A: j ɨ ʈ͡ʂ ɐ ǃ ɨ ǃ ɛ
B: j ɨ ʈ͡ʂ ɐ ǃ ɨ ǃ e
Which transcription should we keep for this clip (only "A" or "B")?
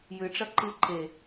B